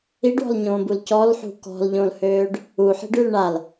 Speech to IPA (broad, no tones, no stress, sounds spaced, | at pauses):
i ɖ w ɔ̤ l ɲ õː b u l c ɔ l ħ ṳ k ɔ̤ l ʎ õ l h øː ɖ | u ħ i̤ ɖ y l ɳ a l